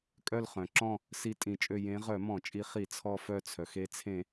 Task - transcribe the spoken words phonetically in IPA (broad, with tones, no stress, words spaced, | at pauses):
kʼœ˦˨lχœ̃˩ǁɔ̃˦˨ | si˦˨tʼĩ˧˩˧t͡ʃʼø˦˨ jẽ˨˦ ʁœ˧˩˧mɔ̃˧˩˧t͡ʃʼi˨˦ χi˧˩˧t͡sʰɔ˦˨fœ˦˨t͡sʰœ˩x e˨˦t͡sʰẽ˧˩˧